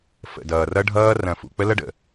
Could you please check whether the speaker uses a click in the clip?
no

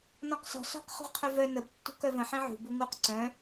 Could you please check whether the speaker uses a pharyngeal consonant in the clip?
yes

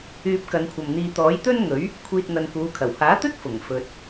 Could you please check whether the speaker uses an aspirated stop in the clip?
yes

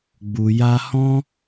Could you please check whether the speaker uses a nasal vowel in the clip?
yes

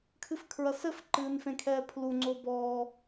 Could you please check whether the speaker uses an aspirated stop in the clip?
yes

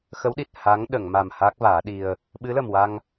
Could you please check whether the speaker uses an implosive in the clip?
yes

